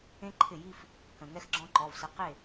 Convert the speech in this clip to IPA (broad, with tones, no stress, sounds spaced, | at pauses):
ẽ˥ ǃʰ ɪ˥˩ j i˥˧ f | k ə̃˩ ŋ ɛ˥ x ɡ͡ǁ ɔ̃˥ ǃ ɔ˩˧˩ v s ə˨˥ q e˥˩